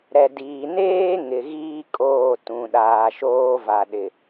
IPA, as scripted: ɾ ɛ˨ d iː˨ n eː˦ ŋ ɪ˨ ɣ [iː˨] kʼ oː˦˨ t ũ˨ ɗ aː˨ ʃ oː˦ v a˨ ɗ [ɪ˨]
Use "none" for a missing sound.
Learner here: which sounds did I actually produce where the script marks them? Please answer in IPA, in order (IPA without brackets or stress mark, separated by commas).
iː˦, ɪ˨